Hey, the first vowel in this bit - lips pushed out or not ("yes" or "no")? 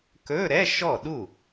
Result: yes